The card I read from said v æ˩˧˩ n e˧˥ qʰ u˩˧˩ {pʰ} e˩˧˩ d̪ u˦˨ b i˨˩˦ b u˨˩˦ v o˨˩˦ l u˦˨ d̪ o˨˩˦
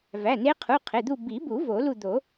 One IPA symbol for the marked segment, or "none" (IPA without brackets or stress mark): qʰ